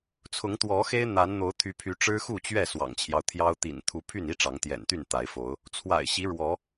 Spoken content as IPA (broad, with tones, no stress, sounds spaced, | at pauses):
t͡sʰ ʊ˨˦ ŋ t̪ w ɔ˨˦ x e˦ ɪ̯ n̪ a˨˦ n n̪ o˨˦ ʊ̯ t̪ʰ y˨˦ pʰ y˨˦ ʈ͡ʂ ɻ̩˦ x u˥˨ t͡ɕ ɥ ɛ˥˨ s w ɑ̰˨˩ ŋ t͡ɕʰ j ɑ˦ ʊ̯ t̪ʰ j ɑ˦ ʊ̯ t̪ ḭ˨˩ n t̪ʰ u˨˦ pʰ y˥˨ n i˦ ʈ͡ʂ ɑ˨˦ ŋ t̪ j ɛ̰˨˩ n t̪ y˥˨ n t̪ a˨˦ ɪ̯ f o˨˦ ʊ̯ | t͡sʰ w a̰˨˩ ɪ̯ ɕ i˨˦ ɻ w ɔ˨˦